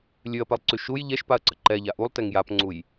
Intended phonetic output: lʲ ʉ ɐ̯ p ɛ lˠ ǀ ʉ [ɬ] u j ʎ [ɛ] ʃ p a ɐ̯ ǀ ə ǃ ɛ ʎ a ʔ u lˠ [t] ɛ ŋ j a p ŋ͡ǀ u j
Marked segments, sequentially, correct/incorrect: incorrect, correct, correct

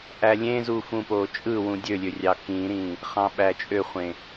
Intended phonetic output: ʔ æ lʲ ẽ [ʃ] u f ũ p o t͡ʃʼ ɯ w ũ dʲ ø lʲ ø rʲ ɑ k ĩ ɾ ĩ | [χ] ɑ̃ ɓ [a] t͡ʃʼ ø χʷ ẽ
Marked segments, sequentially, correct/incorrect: incorrect, correct, incorrect

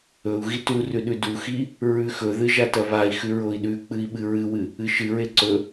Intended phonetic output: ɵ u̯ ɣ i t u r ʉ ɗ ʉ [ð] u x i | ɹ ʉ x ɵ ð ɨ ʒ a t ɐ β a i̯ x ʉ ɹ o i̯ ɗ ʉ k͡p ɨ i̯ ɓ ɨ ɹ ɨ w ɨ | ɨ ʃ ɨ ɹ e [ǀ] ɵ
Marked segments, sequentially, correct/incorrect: incorrect, correct

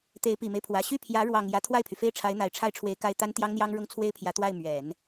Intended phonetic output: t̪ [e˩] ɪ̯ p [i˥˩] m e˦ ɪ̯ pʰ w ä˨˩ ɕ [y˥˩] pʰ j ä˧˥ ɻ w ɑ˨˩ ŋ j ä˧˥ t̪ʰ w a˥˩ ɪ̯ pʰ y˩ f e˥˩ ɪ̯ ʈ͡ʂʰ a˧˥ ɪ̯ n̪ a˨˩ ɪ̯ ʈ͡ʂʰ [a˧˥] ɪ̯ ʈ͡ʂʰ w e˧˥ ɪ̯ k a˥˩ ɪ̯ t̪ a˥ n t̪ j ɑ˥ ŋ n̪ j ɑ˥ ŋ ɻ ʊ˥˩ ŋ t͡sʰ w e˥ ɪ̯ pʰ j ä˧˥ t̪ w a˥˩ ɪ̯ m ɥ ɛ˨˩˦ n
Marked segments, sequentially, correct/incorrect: incorrect, incorrect, correct, incorrect

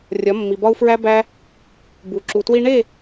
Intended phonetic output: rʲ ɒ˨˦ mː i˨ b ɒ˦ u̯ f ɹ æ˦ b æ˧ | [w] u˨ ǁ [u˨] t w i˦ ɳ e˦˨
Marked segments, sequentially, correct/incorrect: incorrect, correct

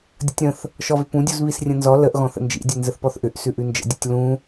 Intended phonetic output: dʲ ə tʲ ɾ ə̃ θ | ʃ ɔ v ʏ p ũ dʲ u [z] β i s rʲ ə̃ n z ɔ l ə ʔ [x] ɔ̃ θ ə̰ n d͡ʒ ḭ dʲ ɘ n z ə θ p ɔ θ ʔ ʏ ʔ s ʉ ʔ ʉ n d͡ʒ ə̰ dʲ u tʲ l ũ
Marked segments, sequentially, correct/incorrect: correct, incorrect

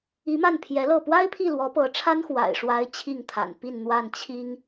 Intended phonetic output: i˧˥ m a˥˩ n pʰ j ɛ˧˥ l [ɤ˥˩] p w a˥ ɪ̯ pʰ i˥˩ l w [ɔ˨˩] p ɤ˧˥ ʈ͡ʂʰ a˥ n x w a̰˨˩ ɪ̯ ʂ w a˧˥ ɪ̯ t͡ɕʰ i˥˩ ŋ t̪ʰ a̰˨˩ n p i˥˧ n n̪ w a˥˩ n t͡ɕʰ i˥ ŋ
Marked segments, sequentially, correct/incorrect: correct, incorrect

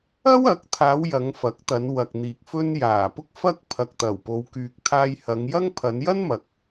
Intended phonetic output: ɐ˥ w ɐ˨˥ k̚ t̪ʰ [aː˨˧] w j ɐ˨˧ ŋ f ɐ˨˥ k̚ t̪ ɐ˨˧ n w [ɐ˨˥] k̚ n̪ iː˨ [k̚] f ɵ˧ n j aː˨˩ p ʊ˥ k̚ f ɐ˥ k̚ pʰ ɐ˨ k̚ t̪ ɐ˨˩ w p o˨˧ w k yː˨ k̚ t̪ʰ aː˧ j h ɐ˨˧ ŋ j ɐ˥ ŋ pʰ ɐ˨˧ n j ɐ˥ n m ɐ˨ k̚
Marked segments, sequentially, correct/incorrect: correct, incorrect, correct

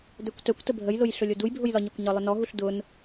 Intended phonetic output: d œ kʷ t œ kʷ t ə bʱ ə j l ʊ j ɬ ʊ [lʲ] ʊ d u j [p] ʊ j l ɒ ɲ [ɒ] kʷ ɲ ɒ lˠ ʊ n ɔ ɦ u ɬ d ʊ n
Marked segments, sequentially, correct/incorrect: correct, incorrect, correct

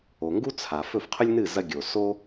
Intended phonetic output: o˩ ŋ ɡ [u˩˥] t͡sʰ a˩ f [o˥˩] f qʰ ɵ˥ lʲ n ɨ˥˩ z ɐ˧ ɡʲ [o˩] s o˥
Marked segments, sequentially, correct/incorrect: incorrect, incorrect, correct

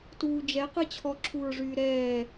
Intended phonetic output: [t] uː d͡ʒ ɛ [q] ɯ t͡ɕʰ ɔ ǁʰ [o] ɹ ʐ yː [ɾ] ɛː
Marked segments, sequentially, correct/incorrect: correct, correct, incorrect, correct

